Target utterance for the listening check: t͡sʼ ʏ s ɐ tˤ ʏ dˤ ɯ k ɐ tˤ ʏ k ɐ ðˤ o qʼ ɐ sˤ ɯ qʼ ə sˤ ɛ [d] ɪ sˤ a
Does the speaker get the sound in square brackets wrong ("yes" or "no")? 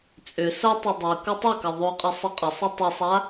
yes